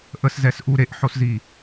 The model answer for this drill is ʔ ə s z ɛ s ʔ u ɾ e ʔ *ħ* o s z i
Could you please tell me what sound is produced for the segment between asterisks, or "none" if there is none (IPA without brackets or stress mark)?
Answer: ħ